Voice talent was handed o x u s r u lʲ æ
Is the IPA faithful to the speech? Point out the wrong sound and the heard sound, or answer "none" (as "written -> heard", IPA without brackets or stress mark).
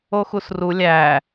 none